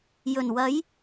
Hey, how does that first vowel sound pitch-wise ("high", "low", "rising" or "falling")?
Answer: low